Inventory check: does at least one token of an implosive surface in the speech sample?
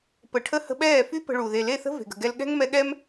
yes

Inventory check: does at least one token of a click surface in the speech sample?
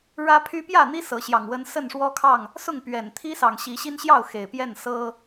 no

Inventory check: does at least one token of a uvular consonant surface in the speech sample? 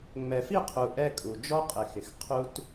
yes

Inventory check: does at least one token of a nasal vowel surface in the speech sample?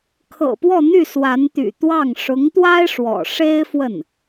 no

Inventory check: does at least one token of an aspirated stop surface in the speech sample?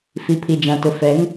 yes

